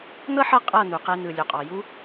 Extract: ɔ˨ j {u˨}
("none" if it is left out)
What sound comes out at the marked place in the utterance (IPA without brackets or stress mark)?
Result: u˦